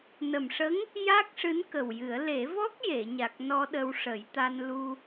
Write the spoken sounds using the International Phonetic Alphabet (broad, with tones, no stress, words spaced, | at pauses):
nə˨˩mʂə˧˥ŋ | ja˦˥k̚ʂɨ˧˥n kə˨˩wjɨ˨˩˦ə̯ le˨˩˦vɔ˦˥k̚je˨˩˨ɲa˨˩k̚ nɔ˧ɗə˧wʂə˨˩˦jt̪a˧n lu˧